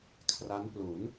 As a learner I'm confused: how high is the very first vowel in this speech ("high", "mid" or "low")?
low